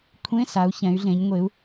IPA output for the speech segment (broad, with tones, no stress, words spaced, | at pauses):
kʷʰẽ˧˥˧ sa˩˧u̯çɛ̃˩˧y̯ɮẽ˩˧ɲ ŋʷe˩˧u̯